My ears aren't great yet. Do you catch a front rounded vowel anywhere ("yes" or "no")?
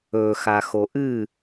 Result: no